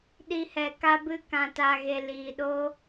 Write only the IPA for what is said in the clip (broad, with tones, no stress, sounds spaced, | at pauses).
ɗ i˧ h ɛ˨ k a˧ b ɨ˧ k ã˨ t a˨ ɣ e˨ l iː˨ ɗ o˦